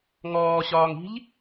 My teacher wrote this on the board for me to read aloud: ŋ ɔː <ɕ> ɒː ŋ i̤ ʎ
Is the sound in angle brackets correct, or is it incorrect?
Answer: correct